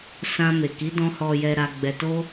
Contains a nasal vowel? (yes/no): yes